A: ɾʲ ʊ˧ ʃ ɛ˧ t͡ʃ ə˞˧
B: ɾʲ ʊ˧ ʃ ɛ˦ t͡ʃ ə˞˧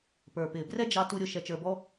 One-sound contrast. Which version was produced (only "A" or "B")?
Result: A